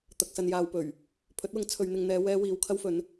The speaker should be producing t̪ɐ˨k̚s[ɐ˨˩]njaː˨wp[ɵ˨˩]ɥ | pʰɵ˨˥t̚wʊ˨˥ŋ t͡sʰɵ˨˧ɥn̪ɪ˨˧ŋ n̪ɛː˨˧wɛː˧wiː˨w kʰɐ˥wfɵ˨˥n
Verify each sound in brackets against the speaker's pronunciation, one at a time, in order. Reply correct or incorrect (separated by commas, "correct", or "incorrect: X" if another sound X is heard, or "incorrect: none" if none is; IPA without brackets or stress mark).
incorrect: ɐ˨, correct